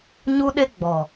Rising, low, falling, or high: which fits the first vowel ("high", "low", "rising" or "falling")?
high